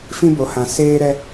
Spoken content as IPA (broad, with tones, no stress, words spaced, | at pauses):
fĩ˦bo˨hã˨ seː˦ɾɛ˦